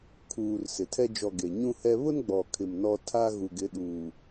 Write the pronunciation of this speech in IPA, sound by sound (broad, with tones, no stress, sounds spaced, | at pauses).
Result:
kʰ uː˨ r s ɪ˨ tʰ ɛ˦ d͡ʒ ɔ˨ ɡ e˨ ɲ ũ˦ h ɛ˦ β ʊ˦ n ɡ͡b ɔ˨ kʰ ɪ˨ m n ɔ˦ tʰ a˦ ɣ u˨ ɡ ɪ˨˦ ɗ uː˨